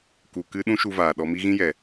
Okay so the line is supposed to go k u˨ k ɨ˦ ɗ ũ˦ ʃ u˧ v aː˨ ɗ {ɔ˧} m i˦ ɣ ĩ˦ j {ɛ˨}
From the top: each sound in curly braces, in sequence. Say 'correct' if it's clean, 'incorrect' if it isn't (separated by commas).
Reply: correct, correct